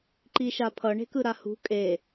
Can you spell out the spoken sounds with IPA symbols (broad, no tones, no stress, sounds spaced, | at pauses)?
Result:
ǃ i ʃ a pʰ ʌ ɳ e̤ k ɯ ɾ a h ṳ kʼ e